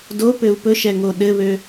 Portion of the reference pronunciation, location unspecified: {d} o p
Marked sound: correct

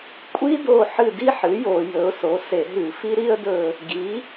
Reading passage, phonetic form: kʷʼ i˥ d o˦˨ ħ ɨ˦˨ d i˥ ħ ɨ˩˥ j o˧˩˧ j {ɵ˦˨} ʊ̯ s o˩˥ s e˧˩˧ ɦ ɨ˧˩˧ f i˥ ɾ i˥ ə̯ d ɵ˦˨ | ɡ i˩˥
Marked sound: incorrect: ɵ˩˥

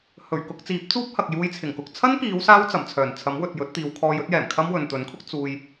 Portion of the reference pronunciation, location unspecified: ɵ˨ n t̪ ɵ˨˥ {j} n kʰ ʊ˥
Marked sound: incorrect: none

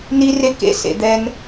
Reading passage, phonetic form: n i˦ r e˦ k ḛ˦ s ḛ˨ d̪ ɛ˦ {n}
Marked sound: correct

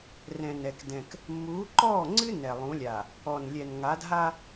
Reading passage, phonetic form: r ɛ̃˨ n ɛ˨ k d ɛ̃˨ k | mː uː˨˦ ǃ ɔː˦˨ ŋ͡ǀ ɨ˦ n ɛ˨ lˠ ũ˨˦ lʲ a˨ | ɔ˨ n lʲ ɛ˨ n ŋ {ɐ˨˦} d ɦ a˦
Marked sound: incorrect: a˨˦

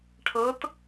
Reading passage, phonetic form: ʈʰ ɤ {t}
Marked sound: correct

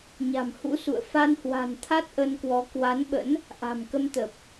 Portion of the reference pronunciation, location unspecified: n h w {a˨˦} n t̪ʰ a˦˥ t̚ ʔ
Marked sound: incorrect: a̤˨˩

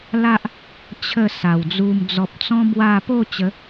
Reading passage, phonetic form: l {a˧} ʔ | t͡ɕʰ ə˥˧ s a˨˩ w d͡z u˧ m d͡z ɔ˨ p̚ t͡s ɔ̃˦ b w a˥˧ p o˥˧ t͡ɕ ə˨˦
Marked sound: incorrect: a˦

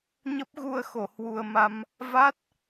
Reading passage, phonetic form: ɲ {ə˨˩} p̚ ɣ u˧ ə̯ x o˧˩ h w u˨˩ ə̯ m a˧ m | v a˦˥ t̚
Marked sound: incorrect: ə˦˥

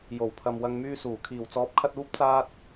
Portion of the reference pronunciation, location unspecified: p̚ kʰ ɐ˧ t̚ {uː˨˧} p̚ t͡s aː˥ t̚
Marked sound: incorrect: uː˥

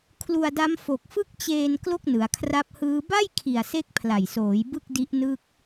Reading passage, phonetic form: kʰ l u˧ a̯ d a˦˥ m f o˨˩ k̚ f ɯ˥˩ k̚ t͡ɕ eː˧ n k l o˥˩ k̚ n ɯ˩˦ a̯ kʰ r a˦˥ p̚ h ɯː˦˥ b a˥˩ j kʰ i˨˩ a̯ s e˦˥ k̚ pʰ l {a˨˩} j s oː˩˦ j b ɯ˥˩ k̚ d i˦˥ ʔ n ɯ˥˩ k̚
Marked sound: correct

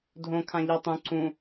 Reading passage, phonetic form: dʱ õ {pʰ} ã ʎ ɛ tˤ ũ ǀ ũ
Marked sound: incorrect: kʰ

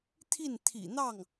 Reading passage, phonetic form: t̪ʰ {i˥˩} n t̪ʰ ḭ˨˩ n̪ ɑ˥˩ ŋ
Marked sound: correct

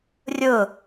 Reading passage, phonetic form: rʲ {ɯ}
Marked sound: incorrect: ʊ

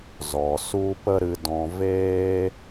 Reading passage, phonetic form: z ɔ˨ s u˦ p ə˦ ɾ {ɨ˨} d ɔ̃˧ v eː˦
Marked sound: incorrect: ɨ˧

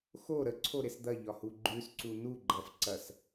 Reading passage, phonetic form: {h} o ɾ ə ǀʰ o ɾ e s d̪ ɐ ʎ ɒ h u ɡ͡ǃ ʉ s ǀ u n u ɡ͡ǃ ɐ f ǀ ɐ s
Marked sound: incorrect: x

